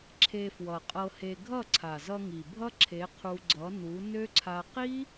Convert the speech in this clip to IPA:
ǁʰe˧fwʌ˨qʼɤ˧he˧ ɡʱʌ˦˨ǀʰa˨zʌ˧ŋi˨ bʱʌ˦ǁʰe˨˦qʰu˧ ɡ͡ǀʌ˨˦nu˨˦nø˦ǀʰa˧ qi˦

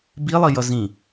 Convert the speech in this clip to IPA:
bilˠijʌ zĩ

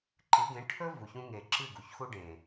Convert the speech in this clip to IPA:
ǃɨ˨˦ɡẽ˨˦ ʈʰɵ˦ vu˨çũ˦ ŋe˨ǁɨ˦˨ ɡu˨çxu˦ ɖẽ˨

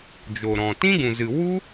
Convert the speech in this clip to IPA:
d͡ʒo˨ɾɔ̃˨ tĩ˦ɡũ˨zɨ˨ wu˦

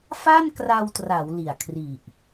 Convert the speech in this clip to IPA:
fa˥˩nkra˧wtra˩˦w li˨˩a̯kʰri˨˩ʔ

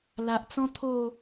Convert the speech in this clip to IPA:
la˨ʔt͡sɔ̃˦t̪ʰo˥˧

